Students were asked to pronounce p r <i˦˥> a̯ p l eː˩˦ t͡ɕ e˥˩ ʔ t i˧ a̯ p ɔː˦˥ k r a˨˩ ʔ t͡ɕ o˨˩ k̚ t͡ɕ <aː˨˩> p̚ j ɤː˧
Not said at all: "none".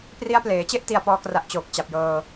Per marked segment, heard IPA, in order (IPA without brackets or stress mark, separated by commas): i˦˥, a˨˩